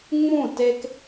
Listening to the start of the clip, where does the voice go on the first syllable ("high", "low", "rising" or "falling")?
falling